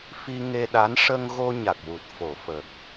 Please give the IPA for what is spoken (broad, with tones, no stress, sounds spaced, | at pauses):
f i˧ ŋ e˧ ɗ a˧˥ n ʂ ə˧ ŋ ɣ o˧ ɲ a˨˩ k̚ w u˨˩ t̚ f o˨˩˨ f ə˨˩ k̚